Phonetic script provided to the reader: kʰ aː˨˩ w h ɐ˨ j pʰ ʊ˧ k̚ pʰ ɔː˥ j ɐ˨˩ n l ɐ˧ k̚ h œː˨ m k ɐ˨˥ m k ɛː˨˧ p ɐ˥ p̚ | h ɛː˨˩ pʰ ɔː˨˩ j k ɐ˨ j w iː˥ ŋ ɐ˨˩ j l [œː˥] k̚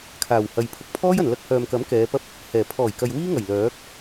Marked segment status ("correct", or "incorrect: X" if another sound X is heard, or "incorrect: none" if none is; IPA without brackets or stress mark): incorrect: œː˨˥